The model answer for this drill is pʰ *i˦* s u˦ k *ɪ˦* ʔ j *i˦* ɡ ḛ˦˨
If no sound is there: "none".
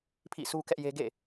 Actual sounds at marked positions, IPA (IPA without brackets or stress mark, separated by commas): ḭ˦˨, ɛ˦, e˦